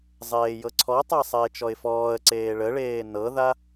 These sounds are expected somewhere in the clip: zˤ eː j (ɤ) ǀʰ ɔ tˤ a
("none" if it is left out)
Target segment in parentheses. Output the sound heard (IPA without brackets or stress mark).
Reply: ɤ